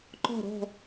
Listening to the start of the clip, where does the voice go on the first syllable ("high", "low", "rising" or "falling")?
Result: falling